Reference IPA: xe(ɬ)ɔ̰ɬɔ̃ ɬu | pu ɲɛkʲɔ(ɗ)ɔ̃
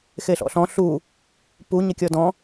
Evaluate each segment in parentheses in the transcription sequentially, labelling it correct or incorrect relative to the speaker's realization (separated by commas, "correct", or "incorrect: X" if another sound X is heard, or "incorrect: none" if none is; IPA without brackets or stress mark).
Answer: correct, incorrect: d